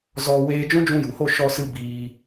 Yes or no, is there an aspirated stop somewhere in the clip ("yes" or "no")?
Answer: no